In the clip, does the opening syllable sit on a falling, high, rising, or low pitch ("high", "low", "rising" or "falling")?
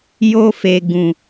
high